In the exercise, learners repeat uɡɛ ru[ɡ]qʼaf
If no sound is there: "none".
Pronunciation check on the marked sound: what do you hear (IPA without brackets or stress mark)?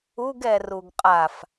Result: ɡ